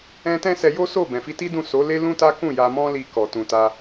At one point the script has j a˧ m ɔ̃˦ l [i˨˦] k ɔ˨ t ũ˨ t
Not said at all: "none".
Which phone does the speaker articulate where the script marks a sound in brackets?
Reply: i˧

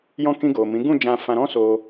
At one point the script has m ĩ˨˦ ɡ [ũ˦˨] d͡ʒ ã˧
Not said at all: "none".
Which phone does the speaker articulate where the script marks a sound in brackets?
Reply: ũ˦˨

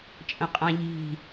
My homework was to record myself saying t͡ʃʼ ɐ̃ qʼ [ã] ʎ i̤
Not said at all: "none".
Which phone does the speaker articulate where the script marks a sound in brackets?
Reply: ã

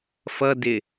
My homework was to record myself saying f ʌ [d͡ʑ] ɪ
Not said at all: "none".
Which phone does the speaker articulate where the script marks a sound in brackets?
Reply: d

